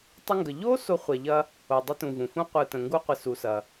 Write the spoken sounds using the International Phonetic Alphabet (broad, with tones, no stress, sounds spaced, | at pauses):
tˤ ɪ˦ ŋ ɡ ə˨ ʎ o˥ s o˦ χʷ ɛ˨ ʎ ɐ˥ | o˨ dˤ ɪ˥ t ũ˨ v ũ˩ f ũ˦ qʷ ɯ˨ t ə̃˩ ŋ ɡ u˦ qʷ ɪ˨ s u˨ s ɐ˨